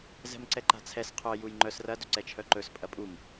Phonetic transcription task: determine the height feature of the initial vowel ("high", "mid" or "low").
mid